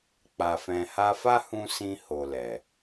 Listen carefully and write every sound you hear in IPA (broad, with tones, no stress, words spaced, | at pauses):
k͡pa˨fɛ̃˨ha˧fa˦ hũ˦ sĩ˧ho˨ lɛ˨